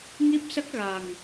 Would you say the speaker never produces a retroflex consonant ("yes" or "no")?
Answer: yes